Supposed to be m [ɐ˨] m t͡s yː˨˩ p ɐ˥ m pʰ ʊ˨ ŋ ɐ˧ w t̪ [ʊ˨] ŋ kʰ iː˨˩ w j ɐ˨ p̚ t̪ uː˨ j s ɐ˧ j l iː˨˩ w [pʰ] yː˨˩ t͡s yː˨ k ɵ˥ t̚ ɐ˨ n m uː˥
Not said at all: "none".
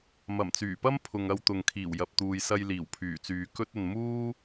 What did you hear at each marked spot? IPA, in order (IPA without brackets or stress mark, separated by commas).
ɐ˨˩, ʊ˨, pʰ